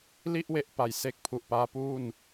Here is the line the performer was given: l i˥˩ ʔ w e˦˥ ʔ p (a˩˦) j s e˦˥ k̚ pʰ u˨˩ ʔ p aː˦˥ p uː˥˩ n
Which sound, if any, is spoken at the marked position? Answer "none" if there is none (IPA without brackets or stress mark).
a˨˩